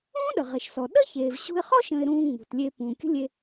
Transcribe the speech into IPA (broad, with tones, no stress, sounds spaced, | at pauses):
ũː˥ ɗ ə˩ ʁ e˩ ʃ s ɔ˩ ɗ ə˥ ç eː˩ v ɕ ṳ˧ ɪ̯ χ ɔ˥ ʃ ə̃ː˧ ɪ̯ ɾ ũː˥ ŋ͡m ṳ˩ t lʲ eː˧ pː ũː˩ kʲ ə̤˥ lʲ e˧